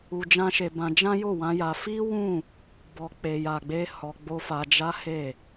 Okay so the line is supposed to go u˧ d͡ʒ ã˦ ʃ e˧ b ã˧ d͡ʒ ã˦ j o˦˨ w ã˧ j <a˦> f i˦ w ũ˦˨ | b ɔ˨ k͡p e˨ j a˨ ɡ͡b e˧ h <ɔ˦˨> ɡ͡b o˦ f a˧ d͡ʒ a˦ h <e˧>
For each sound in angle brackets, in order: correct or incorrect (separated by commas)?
incorrect, incorrect, incorrect